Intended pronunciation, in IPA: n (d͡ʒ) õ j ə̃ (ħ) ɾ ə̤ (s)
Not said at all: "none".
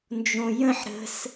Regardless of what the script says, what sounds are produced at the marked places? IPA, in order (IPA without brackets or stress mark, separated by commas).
d͡ʒ, ħ, s